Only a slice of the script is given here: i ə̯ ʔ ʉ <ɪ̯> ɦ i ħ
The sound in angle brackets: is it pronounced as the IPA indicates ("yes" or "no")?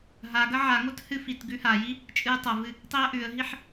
no